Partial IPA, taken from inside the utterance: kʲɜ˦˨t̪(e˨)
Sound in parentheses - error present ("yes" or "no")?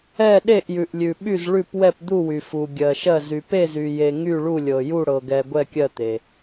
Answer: no